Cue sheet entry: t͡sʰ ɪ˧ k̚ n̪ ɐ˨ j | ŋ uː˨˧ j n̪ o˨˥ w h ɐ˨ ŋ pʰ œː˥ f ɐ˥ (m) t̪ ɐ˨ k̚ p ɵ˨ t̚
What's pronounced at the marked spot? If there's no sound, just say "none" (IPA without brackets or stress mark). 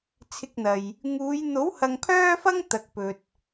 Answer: ŋ